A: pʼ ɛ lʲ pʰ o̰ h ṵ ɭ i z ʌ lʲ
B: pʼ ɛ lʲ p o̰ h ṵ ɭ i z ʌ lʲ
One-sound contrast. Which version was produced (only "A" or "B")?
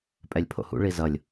A